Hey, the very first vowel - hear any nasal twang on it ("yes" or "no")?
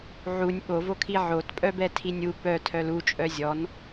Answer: no